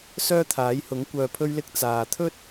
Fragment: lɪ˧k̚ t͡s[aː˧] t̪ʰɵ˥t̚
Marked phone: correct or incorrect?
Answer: incorrect: aː˨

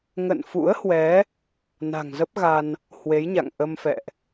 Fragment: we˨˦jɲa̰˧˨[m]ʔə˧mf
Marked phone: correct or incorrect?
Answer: incorrect: ŋ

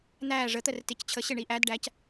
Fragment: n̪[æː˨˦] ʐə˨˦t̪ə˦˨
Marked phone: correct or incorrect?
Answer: incorrect: æː˦˨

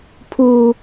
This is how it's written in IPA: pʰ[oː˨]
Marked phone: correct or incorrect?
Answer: incorrect: uː˨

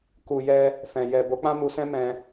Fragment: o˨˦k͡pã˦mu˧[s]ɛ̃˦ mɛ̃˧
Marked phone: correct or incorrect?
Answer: correct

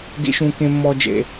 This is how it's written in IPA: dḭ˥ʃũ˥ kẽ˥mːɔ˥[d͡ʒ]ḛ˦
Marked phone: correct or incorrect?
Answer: correct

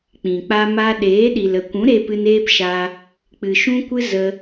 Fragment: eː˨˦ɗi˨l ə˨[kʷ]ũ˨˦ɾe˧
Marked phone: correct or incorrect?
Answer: correct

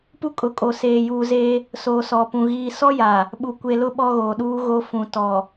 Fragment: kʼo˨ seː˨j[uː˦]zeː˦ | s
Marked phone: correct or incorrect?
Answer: incorrect: uː˨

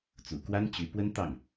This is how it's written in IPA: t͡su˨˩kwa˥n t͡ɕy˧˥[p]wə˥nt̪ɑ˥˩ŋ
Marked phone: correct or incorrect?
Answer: correct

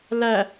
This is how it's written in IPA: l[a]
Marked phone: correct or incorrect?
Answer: incorrect: æ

